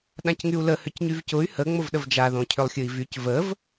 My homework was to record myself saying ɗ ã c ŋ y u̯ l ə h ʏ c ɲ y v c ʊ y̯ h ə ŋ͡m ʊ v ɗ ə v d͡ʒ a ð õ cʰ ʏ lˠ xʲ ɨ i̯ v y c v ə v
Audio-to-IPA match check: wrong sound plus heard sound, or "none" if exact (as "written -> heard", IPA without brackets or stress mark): none